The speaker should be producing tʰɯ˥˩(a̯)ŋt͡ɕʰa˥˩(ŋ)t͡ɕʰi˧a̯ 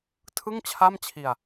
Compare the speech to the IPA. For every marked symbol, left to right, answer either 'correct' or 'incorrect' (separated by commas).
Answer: incorrect, incorrect